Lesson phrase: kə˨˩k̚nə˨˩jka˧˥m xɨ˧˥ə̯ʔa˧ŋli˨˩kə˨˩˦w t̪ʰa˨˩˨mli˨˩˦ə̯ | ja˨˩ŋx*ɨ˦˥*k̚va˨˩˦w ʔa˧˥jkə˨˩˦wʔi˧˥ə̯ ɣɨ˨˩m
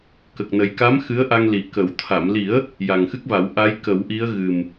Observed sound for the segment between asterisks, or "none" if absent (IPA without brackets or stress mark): ɨ˦˥